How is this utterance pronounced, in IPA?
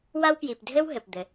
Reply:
wa˥wpji˨p dʱɘ˥w ɦɘ˩pd̪ɘ˩

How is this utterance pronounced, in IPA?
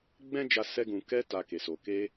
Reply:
ɡ͡bɛ̃˦d͡ʒa˧ sɛ˧ɡũ˨kɛ˧ ta˨ ke˨so˨ ke˧

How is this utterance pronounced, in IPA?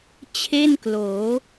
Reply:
t͡ɕʰe˥˩nkloː˩˦

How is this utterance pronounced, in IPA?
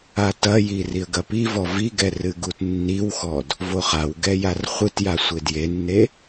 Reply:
atɐji riə̯ɡɐpivɔ viɡɛ rɨɡutnːiwxɔd | voχawɡɛ jarχʷɨtja sʷedjenːe

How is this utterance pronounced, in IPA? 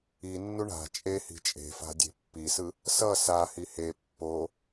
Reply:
inːu ɳa̤ t͡ʃʼehi̤ t͡ʃʼe̤fa̤ dʲe̤pːisɯ | sʌ sa hihe pːo

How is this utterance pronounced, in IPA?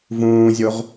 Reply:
vũːzʲoʁ

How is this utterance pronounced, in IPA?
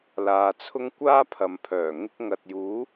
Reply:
laː˨t͡sʰʊ˥ŋ kʷaː˥pʰɐ˨mpʰœː˨˩ ŋɪ˧k̚ ŋɐ˨t̚juː˨˥

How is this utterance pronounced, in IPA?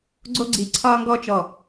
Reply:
ɡ͡ǀo˥ɡ͡ǀi˧˩ ǀʰɒː˥ŋɡɔ˥t͡ʃɔ˧˩

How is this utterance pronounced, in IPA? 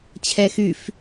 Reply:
t͡ɕʰɛxyf

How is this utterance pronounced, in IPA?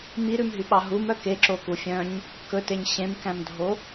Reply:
miɾʉmɦyɓɑ ɦumœ keǁoku fʲœ̃ɲ | kɵteɲ ɕẽmkæ̃mdʱo

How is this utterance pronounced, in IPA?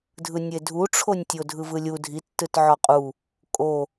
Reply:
dʱɯnʲedʱuʈ͡ʂʰonʲ tʲodʱɯvɯlʲu dʱitːɯt ʕɔqʼu | kʼo

